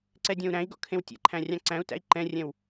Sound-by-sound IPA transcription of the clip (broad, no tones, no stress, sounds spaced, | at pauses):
ǀ ɛ dʲ ɔ̃ u̯ ɾ æ̃ i̯ ɡ ɔ̰ kʰ ẽ w tʲ ɛ̰ ǃʰ æ̃ rʲ ɑ̃ ǀ æ̃ u̯ t æ̰ i̯ ǃ ɛ̃ rʲ ɛ̃ w